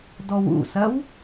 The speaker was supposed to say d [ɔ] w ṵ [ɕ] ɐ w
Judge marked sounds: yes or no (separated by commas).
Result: yes, no